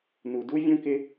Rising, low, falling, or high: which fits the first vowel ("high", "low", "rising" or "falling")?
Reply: low